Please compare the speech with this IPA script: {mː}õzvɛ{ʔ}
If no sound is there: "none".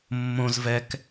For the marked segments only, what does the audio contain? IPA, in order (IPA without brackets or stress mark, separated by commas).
mː, k